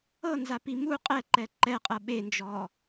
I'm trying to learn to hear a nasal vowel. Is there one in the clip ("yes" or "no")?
no